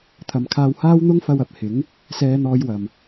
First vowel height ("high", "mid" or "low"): low